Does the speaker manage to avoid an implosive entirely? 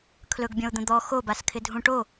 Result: yes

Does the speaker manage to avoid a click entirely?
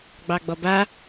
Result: yes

